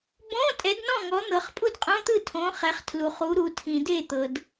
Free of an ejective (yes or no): no